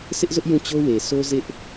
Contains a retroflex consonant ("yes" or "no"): no